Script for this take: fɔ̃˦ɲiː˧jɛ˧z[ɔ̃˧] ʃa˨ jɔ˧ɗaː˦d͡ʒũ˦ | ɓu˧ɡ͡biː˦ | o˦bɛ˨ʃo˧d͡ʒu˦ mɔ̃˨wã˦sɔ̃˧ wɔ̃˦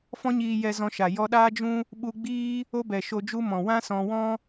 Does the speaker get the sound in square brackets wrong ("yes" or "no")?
no